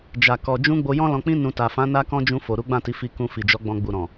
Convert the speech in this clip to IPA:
d͡ʒ a˨ k ɔ˨ d͡ʒ ũ˧ ɡ͡b o˧ j ɔ̃˦ l ɔ̃˧ k͡p ĩ˦ n ũ˧ t a˨ f ã˨˦ n a˦ k ɔ̃˦ d͡ʒ ũ˧ f o˨ ɾ u˨˦ ɡ͡b ã˦˨ t i˨˦ f i˧ k ũ˧ f i˨ d͡ʒ ɔ˨˦ ɡ͡b ɔ̃˧ ɡ͡b u˨ ɾ ɔ̃˨

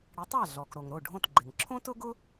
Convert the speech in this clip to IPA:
ɽ ɪ˩˥ tˤ a˥˩ ɮ ɔ˩ k ɾ o˩ ŋ ɾ o˥˩ ɖʱ õ˥˩ t ɡ͡ǃ ɪ˩ ŋ ǁʰ õ˥ t ʊ˥ ɡ ʊ˥

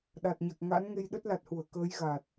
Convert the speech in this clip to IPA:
ɗ a˨˩ t̚ ɲ a˨˩ k̚ ŋ a̰˧˥ n ŋ e˧ j ɗ ə˦˥ t̚ l a˨˩ t̚ h u˧˩ ə̯ k əː˨˦ j ɣ a˨˩ t̚

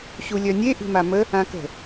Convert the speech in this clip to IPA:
ɕ u lʲ œ nʲ e ʔ i̤ m a m ə | ã k ə̤

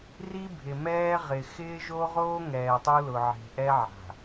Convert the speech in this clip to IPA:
r i˦ bʱ ɪ˨ m ɛː˦ ʁ ɪ˨ x ɪː˦ ʒ o˦ ʁ oː˦ ŋ ɛː˨ tˤ u˦ l ʊ˨ ʕ e̤˨ ʔ ɛ˦ ʕ a̤˨

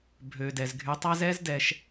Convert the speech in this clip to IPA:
bʱ ø˩ d ɛ˩ z ɡʱ y˨ tˤ a˦ z ɛ˦ z d ɛ˨ ʃ

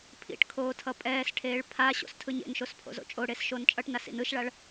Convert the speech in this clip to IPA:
pʰ ḭ ʈ kʰ oː tʰ ʌ pʼ ɛː s ʈʰ eː ɭ pʰ a ɕ o̰ s tʰ ɯ ɲ ḛ n ʃ o s pʰ o̰ z o̰ t͡ʃʼ o ɽ e s ʃ oː n t͡ʃʼ ʌ ʈ n a s ḭ n ɯ ʃ ɭ a ɭ

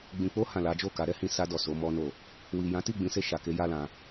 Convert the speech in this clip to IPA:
ɡ͡b ĩ˨ k͡p o˧ h ã˨ l a˨˦ d͡ʒ o˦˨ k a˨˦ ɾ ɛ˦ h ĩ˧ s a˧ d ɔ˨ s o˨˦ m ɔ˦ n o˦˨ | w i˨ j ã˨˦ t i˦˨ ɡ͡b ĩ˨˦ s e˧ ʃ a˨ k e˧ j a˦ l ã˧

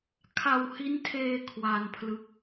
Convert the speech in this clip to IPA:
kʰ a˧ w h i˦˥ n tʰ eː˧ kʰ w a˧ n pʰ l ɯ˦˥ k̚

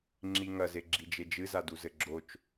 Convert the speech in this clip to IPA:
ŋ͡ǁ i ŋ ɐ z e ɡ͡ǁ i d͡ʒ e d͡ʒ ɨ z a d u z ɘ ɡ͡ǁ o t͡ʃ

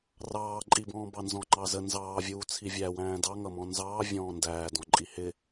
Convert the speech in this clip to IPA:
r ɑː ǃʼ i b ɔ̃ː b ɑ n z ɔ̃ ŋ͡ǃ ɑ z ə n z ɑː vʲ uː t͡sʰ i vʲ æ w æ̃ː d ɑ ŋ ʌ m ɔ̃ n z ɑː vʲ ɔ̃ː n d æː d ɔ̃ ǃʼ i h ɪ

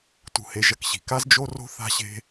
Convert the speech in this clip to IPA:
t ṳ˧ h e˧ ʒ ɐ˧ k ɕ i̤˨ k a˦ z d͡ʒ o˦ r o̤˦ θ a̤˦ ɕ e̤˦

